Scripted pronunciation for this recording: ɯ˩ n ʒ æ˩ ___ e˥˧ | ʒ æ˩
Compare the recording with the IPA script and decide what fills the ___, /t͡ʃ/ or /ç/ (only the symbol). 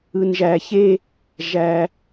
ç